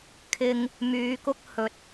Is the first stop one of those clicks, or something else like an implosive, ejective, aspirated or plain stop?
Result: aspirated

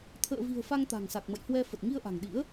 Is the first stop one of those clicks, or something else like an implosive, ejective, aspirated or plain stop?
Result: aspirated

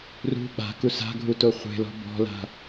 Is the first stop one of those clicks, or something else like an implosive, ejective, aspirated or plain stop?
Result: implosive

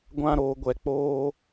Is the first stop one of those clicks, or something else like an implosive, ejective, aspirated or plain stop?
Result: plain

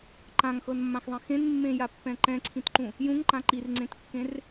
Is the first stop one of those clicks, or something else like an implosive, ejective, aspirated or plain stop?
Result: click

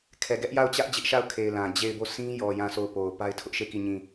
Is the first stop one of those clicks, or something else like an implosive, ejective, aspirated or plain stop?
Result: aspirated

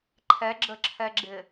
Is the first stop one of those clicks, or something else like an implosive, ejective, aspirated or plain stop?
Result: click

